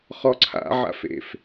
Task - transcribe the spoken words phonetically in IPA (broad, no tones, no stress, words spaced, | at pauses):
χɔǀʰa̰ ʕa̰fḛf